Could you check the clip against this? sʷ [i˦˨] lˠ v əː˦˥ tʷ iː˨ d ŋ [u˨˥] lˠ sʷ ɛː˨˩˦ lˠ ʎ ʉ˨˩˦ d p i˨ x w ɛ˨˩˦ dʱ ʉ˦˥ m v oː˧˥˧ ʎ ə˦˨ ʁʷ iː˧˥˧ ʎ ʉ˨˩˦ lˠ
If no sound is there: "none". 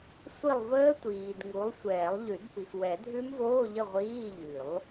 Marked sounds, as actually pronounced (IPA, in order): i˦˨, u˨˥

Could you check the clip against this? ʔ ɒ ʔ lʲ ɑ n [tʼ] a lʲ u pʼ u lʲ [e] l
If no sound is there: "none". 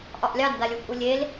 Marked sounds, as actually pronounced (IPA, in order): d, e

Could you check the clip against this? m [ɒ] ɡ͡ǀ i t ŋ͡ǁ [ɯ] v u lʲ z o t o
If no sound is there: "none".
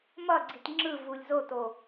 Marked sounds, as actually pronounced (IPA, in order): ʌ, ɯ

